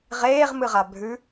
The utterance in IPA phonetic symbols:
ʁ eː ʁ m ɨ ʁ a bʱ ʉ

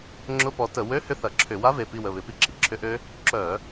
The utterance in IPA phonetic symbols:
ŋ͡ǁ ʊ˧˥˧ p ɔ˨˦ t ə˧˩˧ w ø˧˥˧ h ʏ˦˨ θ ɐ˧˩˧ ǁʰ ʏ˧˩˧ w a˦˥ v e˩˧˩ p i˦˨ w ə˩˧˩ β ɪ˧˩˧ p i˦˥ ǁ i˩˧˩ ǁʰ ʏ˦˥ ʔ ø˦˥ | ǁ œ˧˩˧

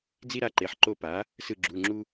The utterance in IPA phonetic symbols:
d͡z i˦ ɾ a˩˥ ǃ e˩˧˩ ħ ǃ o˦˨ p a˩˥ | s ɯ˦˨ ɡ͡ǁ u˩˧˩ ŋ͡ǁ u˦

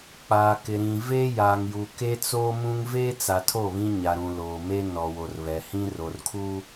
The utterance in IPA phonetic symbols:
k͡p aː˨ k ɪ˨ ɾ ĩ˨ v e˦ j aː˨ ŋ j u˨ k e˦ t͡s oː˦ m ũ˦ ŋ v eː˦ t͡s a˨ tʰ o˦˨ β ĩ˦ ɲ a˨ ɾ ũ˨ l oː˨ m e˦ n ɔ˨ w o˨ r β ɛ˨ h ĩ˦ r o˨ r kʰ uː˦

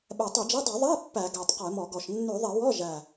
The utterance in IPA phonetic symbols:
ɓ ɛ˨˩ tˤ ʉ˧˩˧ d͡ʒ ɛ˧˥˧ dˤ ø˧˩˧ ðˤ æ˧˥˧ pː æ˧˩˧ ɡ æ˨˩ tˤ q ɛ˧˩˧ m ɔ˧˩˧ ɡ ɔ˨˩ ʃ nː ʉ˧˩˧ ðˤ e˧˩˧ w ɔ˧˥˧ ʒ æ˨˩

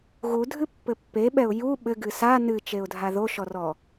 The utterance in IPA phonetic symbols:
ɣ u dʱ ɨ pː ɘ pː e ɓ ɛ ʊ̯ j u ɓ ɘ ɡ ɨ s a n ɨ t͡ʃ e ʊ̯ dʱ a ð o ʃ ɔ r ɔ

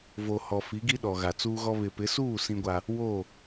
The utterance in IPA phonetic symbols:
v o˨ h ɔ˨ f i˨˦ ɡ i˦ ɗ ɔ˨ ɣ a˨ t͡s uː˦ ɣ ɔ˦ β ɪ˨ p ɪ˨˦ s uː˦˨ s ĩ˦ ɡʷ a˦ | w o˦˨

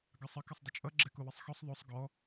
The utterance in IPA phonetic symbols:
ɡ ɑ sˤ ə k ʌ sˤ dˤ ɪ t͡ʃʼ ʌ ɡ͡ǁ ɛ k u w ɪ sˤ x ɔ sˤ ðˤ o sˤ ɡ ɔ

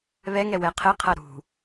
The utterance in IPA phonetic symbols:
β ɛ ŋ ɛ w ɛ qʰ ɘ qʰ ɐ ɾ ṳ

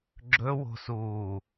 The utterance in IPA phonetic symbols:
ɡ͡ǁ ɵ w o̤ s uː

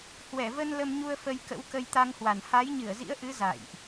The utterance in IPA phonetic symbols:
h w ɛ˧˩ v ə˧ n l ə˧ m ɲ u˧ ə̯ f ə˧ j k ə̰˧˥ w k ə˧ j t̪ a˧ ŋ h w a˨˩ n h a˨˦ j ɲ ɨ˧˩ ə̯ z ḭ˧˥ ə̯ ʔ ɨ˨˦ z a̰˧˨ j ʔ

